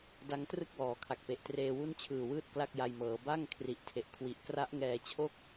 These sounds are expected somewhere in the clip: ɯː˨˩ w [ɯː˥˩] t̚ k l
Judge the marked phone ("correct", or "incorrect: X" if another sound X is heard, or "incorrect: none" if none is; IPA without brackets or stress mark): correct